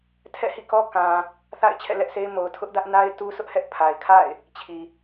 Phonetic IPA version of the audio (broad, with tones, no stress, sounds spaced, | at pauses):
tʰ ɛ̰˦˨ h ḭ˦˨ k ɔ˦ k ã˨ | θ a̰˦˨ ɪ̯ t͡ɕʰ ɛ̰˦˨ l ɛ˦ ʔ s e˦ ɪ̯ m o˨ ʊ̯ tʰ ʊ˦ ʔ d ä˦ ʔ n a˦ ɪ̯ t u˦ s ʊ˦ ʔ h ɛ˦ ʔ pʰ a˨ ɪ̯ kʰ a̰˦˨ ɪ̯ | t͡ɕʰ i˨